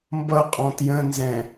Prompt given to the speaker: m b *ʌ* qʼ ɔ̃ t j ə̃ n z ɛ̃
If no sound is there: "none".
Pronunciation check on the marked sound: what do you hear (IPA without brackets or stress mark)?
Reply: ʌ